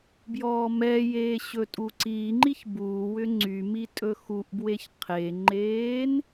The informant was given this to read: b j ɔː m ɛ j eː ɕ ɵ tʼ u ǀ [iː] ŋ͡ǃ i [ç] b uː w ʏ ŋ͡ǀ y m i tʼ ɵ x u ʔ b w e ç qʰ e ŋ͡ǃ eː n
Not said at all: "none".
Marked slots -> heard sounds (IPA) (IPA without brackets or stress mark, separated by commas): iː, ç